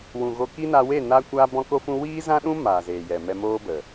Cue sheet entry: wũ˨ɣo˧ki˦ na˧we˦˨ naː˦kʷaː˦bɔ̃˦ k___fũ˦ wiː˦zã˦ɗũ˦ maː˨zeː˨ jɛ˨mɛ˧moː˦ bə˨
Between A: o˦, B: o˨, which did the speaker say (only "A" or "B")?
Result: A